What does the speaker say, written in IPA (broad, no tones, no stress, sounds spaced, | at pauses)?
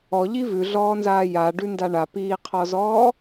ɔ ʎ i v ʉ ɮ ɔː n z aː j a ɖ ʉ n d a ɳ a p iː qʰ ɔ z ɔː